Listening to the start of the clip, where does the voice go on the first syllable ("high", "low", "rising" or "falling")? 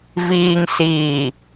low